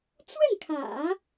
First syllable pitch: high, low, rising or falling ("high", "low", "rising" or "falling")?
falling